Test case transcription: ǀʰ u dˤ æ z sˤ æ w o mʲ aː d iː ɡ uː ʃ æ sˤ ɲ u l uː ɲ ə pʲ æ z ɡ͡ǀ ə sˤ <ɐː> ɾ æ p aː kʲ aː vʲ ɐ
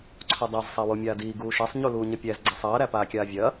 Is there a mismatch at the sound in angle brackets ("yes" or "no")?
no